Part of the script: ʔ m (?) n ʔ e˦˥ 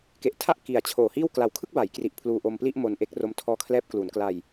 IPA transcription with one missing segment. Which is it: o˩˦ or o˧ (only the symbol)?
o˧